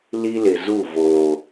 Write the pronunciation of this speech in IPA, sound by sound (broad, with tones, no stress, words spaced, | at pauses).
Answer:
li˦lɪ˨zu˦˨ voː˨